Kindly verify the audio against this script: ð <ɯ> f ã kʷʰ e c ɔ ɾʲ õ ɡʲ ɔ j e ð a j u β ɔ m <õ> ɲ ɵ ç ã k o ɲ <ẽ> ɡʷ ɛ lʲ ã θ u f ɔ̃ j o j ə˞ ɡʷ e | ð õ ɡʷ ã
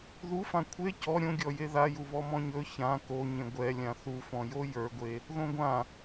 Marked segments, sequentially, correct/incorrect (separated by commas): incorrect, incorrect, correct